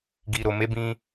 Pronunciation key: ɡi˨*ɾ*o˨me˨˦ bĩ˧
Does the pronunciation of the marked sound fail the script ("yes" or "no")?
no